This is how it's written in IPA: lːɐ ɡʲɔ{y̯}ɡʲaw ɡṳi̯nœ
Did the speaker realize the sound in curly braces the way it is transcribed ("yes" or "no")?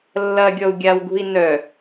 no